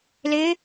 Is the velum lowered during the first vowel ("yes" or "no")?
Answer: no